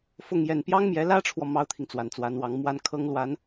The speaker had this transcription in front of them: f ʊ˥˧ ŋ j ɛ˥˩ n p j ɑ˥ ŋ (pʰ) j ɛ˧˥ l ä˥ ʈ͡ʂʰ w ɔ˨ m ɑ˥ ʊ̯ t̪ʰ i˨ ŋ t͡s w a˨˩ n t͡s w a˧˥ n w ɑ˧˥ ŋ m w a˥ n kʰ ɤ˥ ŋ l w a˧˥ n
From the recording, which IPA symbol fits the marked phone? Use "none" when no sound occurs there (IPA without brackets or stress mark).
m